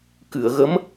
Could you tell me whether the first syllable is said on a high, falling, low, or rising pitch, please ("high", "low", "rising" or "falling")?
low